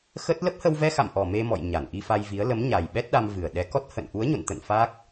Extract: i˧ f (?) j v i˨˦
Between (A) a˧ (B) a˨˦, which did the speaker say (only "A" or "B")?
A